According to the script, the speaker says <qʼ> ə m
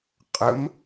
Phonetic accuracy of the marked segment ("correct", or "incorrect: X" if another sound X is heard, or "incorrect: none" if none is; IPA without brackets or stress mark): correct